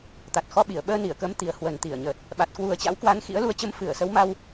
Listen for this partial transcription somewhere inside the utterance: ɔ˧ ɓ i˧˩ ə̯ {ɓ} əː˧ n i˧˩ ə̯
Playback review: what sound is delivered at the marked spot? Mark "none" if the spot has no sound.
ɓ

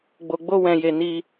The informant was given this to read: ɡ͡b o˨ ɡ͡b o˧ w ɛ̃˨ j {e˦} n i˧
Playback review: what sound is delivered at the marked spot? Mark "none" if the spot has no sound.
e˨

